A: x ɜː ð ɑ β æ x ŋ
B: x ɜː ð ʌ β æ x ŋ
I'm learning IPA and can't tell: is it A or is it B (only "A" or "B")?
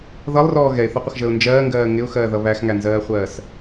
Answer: B